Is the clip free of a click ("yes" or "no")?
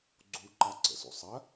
no